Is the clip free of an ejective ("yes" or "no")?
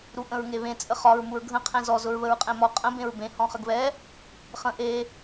no